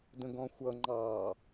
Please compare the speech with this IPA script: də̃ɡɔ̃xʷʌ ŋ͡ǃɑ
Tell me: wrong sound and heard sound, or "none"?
none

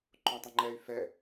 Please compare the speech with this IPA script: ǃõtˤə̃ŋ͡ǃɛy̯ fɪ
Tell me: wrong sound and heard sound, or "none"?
ɪ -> ɛ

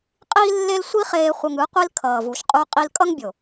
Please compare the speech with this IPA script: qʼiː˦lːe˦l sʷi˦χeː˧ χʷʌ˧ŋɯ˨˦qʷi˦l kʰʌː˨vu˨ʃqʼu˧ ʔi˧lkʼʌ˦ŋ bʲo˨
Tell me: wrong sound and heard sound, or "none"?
ʔ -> qʼ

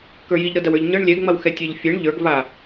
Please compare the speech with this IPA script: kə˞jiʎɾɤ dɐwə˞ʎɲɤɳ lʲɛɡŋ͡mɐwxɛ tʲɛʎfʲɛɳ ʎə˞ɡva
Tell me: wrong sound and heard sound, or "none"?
none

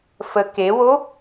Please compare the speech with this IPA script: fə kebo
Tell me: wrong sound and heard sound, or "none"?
b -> w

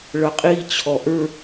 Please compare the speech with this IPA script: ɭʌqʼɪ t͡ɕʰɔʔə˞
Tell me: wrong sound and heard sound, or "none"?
ɪ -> i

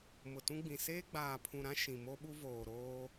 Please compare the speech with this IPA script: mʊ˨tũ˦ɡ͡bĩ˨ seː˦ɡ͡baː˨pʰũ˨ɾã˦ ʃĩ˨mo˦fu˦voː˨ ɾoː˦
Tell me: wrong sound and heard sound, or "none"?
f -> ɓ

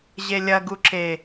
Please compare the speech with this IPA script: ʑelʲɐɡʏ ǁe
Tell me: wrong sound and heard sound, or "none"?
ʏ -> u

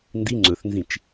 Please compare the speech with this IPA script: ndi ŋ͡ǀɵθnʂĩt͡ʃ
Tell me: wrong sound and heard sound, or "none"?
ʂ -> z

